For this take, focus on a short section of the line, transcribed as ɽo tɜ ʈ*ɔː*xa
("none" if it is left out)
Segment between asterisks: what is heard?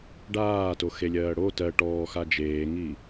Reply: ɔː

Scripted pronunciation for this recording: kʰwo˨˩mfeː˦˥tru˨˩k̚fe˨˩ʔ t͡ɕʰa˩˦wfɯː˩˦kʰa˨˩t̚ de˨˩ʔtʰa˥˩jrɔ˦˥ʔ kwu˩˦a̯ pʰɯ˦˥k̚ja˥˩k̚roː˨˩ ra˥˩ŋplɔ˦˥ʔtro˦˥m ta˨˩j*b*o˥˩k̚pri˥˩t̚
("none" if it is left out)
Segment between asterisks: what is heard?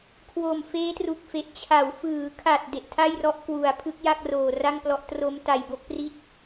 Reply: b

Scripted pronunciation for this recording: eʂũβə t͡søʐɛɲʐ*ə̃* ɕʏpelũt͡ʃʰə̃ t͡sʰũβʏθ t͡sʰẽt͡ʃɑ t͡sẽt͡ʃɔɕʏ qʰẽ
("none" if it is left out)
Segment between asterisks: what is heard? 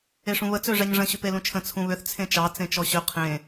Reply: ə̃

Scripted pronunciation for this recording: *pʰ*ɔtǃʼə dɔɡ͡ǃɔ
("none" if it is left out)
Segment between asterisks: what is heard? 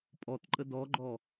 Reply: pʼ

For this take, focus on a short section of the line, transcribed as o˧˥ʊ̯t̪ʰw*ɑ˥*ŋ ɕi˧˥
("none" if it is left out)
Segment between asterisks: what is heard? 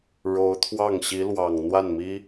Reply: ɑ˥˩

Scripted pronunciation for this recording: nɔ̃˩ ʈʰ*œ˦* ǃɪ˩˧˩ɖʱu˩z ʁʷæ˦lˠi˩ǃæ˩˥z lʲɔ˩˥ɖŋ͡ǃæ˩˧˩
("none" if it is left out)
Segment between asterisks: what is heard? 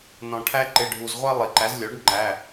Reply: æ˦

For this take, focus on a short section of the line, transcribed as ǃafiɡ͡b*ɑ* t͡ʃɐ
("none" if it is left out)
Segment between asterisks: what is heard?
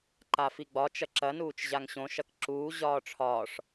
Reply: ɒ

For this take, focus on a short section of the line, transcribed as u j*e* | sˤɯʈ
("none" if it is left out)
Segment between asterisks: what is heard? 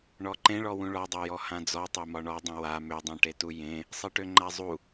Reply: ẽ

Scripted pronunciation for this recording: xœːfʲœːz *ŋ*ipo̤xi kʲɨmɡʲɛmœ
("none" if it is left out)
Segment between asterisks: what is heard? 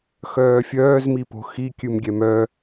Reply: m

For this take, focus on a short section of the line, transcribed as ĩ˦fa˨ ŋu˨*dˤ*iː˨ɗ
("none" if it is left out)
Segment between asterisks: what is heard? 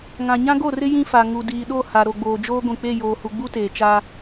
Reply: d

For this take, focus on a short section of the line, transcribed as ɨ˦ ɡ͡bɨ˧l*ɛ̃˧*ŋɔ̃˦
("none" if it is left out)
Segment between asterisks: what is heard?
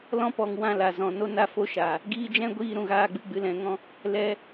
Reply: ɛ̃˧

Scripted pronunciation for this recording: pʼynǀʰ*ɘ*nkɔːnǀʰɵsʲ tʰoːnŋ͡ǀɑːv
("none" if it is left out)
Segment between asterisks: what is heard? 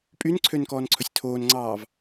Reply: ø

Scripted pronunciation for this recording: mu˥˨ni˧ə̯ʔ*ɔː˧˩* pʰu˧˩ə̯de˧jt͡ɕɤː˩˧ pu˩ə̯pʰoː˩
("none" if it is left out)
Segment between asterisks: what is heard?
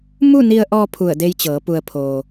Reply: ɔː˧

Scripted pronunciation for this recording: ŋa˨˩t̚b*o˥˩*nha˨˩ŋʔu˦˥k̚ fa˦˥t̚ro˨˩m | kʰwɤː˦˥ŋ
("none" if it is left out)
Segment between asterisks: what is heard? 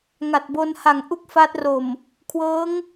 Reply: o˧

